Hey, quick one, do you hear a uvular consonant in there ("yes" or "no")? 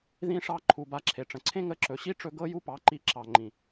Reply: no